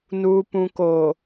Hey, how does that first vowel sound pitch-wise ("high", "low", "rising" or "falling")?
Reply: low